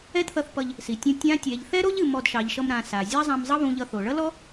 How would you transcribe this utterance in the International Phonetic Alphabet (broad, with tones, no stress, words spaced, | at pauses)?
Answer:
ɛ˥dθʌ˧˥θpʌ˧ʎ | si˩˧tʲũ˧ tʲã˧˥ tʲɛ˩˧ʎθɛ˥ɾo˥ʎɨ˩˧ mɔ˧dʃɑ˩˧ʎʃʌ˧m ɾã˩˧sa˩ zʲɑ˥zˤã˧m zˤʌ˥βũ˧ʎʌ˧θo˩ ɭʌ˥lɔ˥